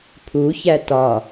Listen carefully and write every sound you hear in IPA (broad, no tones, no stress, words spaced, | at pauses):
pʰuçæ tɒ